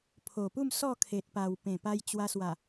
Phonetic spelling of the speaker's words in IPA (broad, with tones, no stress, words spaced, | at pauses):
pʰo˨˩pu˥˧m sɔ˥˧kʰe˨t̚pa˨˩w pẽ˨˩pa˧j t͡ɕwa˧swa˨˩